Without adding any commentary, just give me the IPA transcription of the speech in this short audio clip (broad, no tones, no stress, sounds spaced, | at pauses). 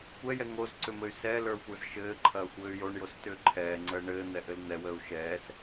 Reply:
kʷ ɛ j ɛ ŋ o z ǀ ʏ m ɘ y̯ s ɛ l ə˞ xʷ ə˞ z ʃ ɘː ǃʰ ɐː xʷ ɘː y̯ j o ɳ j o s t ʏː ǃʰ ɛː ŋ͡ǀ əː ɳ ɘː n̪ ɛ ʔ ɘ l n̪ ɛ w əː u̯ ʃ ɛː s